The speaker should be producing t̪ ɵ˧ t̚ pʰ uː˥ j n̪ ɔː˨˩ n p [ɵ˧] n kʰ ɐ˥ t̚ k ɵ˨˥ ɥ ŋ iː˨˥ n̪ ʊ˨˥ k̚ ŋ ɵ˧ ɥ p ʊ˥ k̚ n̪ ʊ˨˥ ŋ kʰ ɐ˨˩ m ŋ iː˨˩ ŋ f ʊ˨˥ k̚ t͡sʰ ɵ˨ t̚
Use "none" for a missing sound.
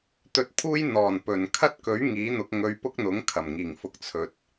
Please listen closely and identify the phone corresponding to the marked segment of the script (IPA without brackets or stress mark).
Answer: ɵ˨˩